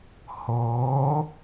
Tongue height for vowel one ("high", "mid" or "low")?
mid